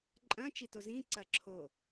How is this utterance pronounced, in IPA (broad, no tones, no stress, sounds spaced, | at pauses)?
ǃʼ ɐ̃ t͡ʃ i t o z ĩ ǀ ɐ ǁʰ o